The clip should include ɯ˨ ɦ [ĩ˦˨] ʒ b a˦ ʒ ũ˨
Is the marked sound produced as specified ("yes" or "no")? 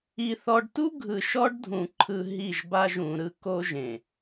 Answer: no